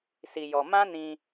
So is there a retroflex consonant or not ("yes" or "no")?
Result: no